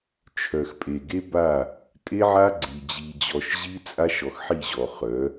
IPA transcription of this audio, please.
t͡ʃʰ œ˨ x pʼ e˨ ɡ e˦ b a˦˨ | tʼ e˦ ʕ a˦ ɡ͡ǀ i˨ d͡ʑ i˨ d͡ʑ ɔ˨ ʃ ʑ i˦ t͡sʼ a˦ ʃ ɔ˨ x ħ i˦˨ ʑ ɔ˨ χ œ˨˦

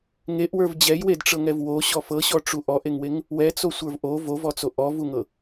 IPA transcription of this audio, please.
ŋ e ʔ w ə˞ v d͡ʑ ɛ j w e d ʈ͡ʂ ɤ ŋ ɛ v w o ɕ ɔ f ɤ ɕ ɔ ʈ͡ʂ u ʔ ɔ ʔ e ŋ w e ŋ | w ɛ t͡s o sʷ ə˞ v ʔ o v o v ɔ t͡s o ʔ ɔ v u ŋ ɤ

